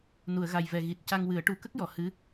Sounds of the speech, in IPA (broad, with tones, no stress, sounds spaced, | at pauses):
n u˨˩˨ ə̯ ɣ a˨˩ j v ɛ˨˩ ɣ i˨˩ t̚ c a˧ ŋ w ɨ˨˩˦ ə̯ ʈ u˨˩˦ k ə˦˥ k̚ j ɔ˨˩˨ h ɨ˧˥